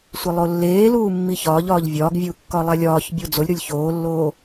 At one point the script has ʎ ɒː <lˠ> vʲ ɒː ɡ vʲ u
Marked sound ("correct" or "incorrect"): incorrect